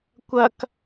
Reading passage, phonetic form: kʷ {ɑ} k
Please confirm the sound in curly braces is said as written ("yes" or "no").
no